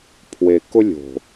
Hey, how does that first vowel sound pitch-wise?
low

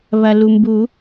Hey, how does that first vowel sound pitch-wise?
low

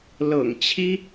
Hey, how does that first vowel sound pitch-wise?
low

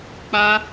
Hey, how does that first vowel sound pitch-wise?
high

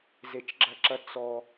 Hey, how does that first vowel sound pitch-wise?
low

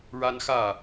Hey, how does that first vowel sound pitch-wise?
high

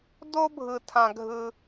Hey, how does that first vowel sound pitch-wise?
high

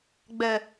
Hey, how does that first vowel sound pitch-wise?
low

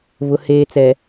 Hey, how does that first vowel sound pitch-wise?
low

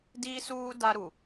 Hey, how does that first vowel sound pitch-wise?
high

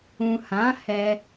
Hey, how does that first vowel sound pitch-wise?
low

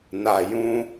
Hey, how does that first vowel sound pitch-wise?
low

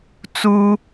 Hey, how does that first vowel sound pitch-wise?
high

